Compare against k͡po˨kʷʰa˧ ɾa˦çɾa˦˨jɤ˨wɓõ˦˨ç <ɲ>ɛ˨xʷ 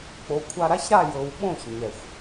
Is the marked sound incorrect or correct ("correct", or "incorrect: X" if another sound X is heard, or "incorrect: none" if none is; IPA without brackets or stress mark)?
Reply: correct